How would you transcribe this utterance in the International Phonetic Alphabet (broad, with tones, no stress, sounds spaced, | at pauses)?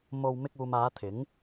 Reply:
m o˧ w m ɪ˧ k̚ uː˨ m aː˨˧ t̪ʰ ɪ˨˥ ŋ